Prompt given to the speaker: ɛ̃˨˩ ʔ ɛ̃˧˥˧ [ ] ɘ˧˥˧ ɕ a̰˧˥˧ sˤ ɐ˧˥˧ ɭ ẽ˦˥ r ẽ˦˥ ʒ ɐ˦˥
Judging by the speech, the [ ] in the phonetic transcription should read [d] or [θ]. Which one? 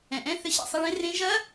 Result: θ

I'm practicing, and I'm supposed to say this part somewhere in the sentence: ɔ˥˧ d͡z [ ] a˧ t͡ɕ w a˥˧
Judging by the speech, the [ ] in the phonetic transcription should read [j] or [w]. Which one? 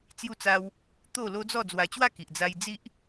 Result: w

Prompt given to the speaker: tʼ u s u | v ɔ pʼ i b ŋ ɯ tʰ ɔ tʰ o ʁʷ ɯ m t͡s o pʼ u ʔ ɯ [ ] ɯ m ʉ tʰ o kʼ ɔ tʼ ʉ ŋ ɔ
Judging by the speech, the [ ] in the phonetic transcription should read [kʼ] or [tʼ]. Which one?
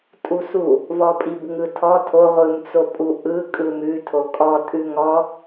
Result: kʼ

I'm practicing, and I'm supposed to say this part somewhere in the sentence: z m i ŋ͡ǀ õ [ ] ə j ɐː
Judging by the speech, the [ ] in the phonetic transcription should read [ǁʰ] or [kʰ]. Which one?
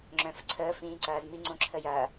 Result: ǁʰ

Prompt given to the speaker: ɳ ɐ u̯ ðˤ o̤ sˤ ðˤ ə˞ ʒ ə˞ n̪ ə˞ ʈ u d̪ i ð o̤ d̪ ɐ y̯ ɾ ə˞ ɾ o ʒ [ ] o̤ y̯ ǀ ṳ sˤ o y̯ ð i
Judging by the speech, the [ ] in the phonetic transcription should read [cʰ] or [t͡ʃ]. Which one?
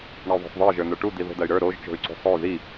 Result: t͡ʃ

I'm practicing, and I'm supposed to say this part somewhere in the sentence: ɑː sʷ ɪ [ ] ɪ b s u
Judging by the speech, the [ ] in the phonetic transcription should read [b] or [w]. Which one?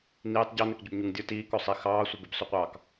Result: b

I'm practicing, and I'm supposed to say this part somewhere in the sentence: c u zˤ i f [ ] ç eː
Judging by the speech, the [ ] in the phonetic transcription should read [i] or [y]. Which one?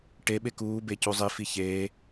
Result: i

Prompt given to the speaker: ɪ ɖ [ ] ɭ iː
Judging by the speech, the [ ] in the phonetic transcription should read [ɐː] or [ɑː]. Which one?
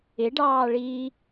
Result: ɑː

